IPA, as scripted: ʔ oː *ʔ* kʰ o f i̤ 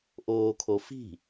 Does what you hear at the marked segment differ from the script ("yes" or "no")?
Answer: yes